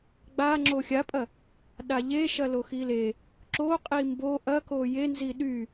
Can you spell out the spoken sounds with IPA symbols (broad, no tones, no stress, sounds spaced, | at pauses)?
ɡ͡b a ŋ͡ǁ o xʲ a pʼ ɐ | ɗ a ʎ e ʃ ɐ l o x i l e | ǁ o qʼ i m b o ʔ ɐ k o j e n z i ɗ y